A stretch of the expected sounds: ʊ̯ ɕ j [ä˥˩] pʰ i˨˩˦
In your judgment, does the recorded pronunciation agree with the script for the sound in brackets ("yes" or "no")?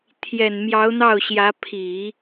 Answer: no